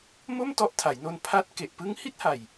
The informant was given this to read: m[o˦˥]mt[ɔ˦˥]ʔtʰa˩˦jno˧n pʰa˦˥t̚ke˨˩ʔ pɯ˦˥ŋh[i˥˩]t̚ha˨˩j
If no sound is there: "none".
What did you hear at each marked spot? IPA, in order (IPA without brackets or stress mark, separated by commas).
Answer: o˥˩, ɔ˦˥, i˥˩